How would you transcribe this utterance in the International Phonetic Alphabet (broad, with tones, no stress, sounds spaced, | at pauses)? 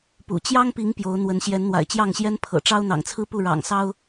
p ṵ˨˩ t͡ɕ j ɑ˦ ŋ p i˨˦ ŋ p j o˨˦ ʊ̯ n̪ w ə˨˦ n ɕ j ɛ˨˦ n n̪ w a̰˨˩ ɪ̯ t͡ɕ j ɑ˥˨ ŋ ɕ j ɛ˦ n pʰ ɤ̰˨˩ ʈ͡ʂ ɑ˦ ʊ̯ n̪ ɑ̰˨˩ ŋ t͡sʰ ɹ̩˦ p u˥˨ ɻ ɑ̰˨˩ ŋ s ɑ˦ ʊ̯